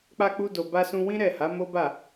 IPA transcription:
k͡pa˧k͡pu˧do˨ ba˧sũ˧wĩ˦ ɾɛ˦˨ha˨˦ mo˦ba˦˨

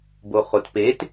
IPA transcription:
boχotpet

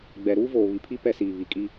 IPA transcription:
ɡ͡bɛ˨ ɾuː˦voː˨βi˨pʰi˦ pɛ˦siː˨ βi˨kʼi˦

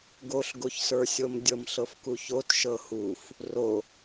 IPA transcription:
ɡoɬɡoçsə˞sʲom dʲɤmɬɤfkuçot ʃɤhuf | ro

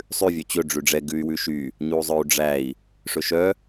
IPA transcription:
sˤʉ vʲœt͡ɕɵ ɖ͡ʐʉɖ͡ʐɛ ɡʉy̯wʉʃy | ɲuzˤœu̯ɖ͡ʐæi̯ | ʂɵʃœ

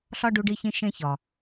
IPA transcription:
ɬɒ˦ɖu˧ɖi˧çĩ˧ ʃẽ˦çɒ˨

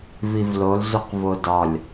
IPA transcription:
vivlol zuqvodɒlʲ

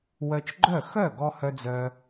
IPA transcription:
wœ˧t͡ʃɡ͡ǃœ˥˩ xœ˥˩ɡɔ˧ hœ˧d͡zœ˧

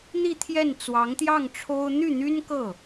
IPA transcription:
n̪i˥˧t̪ʰjɛ˥˩n t͡swɑ˧˥ŋt̪jɑ˥˩ŋʈ͡ʂʰo˥ʊ̯ n̪y˥˩n̪y˥nkɤ˥˩

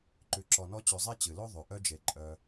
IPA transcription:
ǃʉ˨ǁɔ˨nɔ˦ t͡ɕʉ˨zˤe˥t͡ɕɨ˩lo˥ ðˤʉ˩ʔœ˥d͡ʒe˨ ǃʼœ˨

